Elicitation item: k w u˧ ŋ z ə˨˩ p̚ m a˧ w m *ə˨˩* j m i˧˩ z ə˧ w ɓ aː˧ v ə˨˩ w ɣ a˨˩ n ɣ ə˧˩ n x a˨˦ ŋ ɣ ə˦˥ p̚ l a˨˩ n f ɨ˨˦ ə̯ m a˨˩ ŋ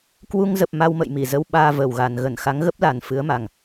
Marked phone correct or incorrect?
incorrect